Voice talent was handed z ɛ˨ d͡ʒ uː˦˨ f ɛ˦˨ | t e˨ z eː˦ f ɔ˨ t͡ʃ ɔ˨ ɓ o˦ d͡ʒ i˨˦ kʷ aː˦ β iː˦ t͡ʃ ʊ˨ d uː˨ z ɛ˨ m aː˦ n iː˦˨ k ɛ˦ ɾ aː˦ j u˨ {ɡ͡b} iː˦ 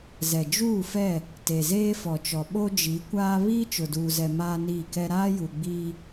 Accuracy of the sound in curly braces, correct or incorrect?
correct